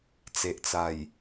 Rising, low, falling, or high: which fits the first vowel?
low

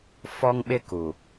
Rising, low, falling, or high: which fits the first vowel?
high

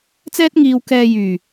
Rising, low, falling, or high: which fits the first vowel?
high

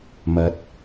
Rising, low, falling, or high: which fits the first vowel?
low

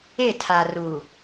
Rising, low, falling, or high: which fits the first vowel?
falling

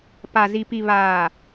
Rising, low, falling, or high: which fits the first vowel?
low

